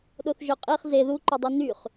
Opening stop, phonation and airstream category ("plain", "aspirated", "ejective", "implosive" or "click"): implosive